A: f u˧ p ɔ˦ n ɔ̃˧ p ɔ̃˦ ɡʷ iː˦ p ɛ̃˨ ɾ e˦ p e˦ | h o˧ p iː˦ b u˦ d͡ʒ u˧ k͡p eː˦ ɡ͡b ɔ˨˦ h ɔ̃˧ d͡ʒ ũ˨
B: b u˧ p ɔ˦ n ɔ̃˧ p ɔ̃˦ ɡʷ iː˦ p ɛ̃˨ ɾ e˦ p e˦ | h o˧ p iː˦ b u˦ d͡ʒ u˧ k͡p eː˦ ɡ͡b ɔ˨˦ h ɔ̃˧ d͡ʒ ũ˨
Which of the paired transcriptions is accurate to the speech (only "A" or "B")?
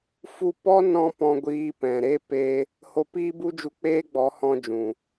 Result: A